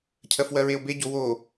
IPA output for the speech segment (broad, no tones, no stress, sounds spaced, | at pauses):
cʰ ɜ f w ɜ ɹ e o̯ b e ɟ o w o